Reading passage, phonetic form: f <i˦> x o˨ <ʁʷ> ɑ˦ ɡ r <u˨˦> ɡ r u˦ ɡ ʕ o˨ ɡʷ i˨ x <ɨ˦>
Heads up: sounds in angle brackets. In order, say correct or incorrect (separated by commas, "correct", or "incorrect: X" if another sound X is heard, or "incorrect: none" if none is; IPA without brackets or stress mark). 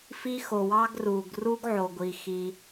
correct, incorrect: w, incorrect: u˨, incorrect: i˦